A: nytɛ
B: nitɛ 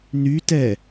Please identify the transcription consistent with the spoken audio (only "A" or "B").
A